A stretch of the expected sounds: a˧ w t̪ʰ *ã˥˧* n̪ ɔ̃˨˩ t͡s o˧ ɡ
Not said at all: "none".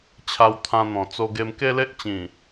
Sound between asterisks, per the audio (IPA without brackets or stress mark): ã˧